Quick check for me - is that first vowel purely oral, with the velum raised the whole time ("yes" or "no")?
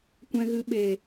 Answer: no